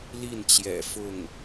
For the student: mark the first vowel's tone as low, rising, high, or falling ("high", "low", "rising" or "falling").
falling